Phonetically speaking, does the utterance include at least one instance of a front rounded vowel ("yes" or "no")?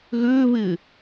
yes